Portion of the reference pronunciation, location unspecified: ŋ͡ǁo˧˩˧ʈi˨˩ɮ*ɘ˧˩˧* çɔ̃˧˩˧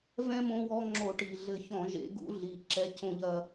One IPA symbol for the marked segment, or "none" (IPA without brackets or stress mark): ɘ˧˩˧